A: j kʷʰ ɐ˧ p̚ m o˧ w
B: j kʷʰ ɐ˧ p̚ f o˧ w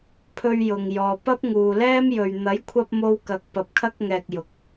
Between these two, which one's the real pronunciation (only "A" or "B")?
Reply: A